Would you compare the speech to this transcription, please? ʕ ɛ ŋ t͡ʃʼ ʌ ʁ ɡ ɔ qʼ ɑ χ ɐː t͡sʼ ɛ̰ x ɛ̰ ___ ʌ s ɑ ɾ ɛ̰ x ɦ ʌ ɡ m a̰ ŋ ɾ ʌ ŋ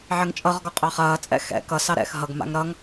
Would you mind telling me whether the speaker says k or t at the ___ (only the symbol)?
k